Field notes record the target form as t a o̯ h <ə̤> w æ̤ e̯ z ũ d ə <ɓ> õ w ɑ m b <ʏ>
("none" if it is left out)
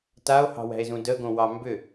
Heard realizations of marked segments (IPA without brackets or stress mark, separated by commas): ɑ̤, ɡ, ʏ